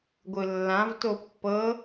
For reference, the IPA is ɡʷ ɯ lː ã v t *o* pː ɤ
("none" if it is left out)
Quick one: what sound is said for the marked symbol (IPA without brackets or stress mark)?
o